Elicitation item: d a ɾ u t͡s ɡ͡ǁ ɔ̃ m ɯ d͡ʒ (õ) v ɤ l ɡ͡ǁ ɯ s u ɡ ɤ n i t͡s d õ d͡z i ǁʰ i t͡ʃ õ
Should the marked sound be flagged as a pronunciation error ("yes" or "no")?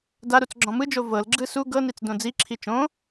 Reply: yes